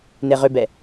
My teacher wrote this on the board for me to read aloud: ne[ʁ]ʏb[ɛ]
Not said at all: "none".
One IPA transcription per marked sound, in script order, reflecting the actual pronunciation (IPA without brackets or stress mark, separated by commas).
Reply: ʁ, ɛ